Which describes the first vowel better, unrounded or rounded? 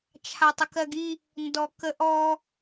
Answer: unrounded